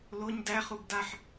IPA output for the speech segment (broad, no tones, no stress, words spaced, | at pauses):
loɲ dæχub daħ